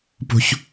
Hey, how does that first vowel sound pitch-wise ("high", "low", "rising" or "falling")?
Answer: high